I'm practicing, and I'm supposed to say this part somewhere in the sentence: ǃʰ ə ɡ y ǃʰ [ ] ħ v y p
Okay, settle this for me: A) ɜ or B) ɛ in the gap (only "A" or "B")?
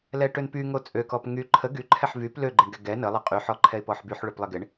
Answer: B